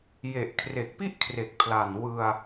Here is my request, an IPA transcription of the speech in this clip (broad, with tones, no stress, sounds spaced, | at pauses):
j e˨˩ ʔ kʰ r e˨˩ k̚ p i˥˩ ʔ kʰ r e˨˩ k̚ pʰ l a˨˩ n w ɯ˧ a̯